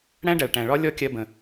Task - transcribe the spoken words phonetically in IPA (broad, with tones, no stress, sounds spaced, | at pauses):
ɽ æ̃˥ ɖ æ˩ ɭ ʈ æ̃˩ ɭ ɒ˥ lʲ ɔ˥ kʲ ɜ˧ b ə̃˩